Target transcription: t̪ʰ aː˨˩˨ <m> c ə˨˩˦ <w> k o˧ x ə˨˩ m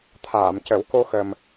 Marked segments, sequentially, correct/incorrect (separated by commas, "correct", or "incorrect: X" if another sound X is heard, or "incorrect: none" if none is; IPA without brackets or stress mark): correct, correct